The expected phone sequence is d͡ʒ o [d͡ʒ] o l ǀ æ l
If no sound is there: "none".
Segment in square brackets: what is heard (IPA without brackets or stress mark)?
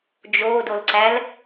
d